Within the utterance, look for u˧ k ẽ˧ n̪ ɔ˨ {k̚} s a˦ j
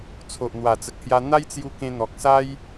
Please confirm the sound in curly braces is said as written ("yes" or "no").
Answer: yes